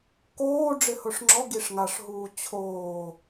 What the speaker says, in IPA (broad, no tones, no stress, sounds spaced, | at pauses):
k oː ɖ͡ʐ ɪ h ʊ ʂ ŋ͡ǁ ɔ ɡ i ʂ ŋ a ʂ ɦ uː t͡ɕʰ oː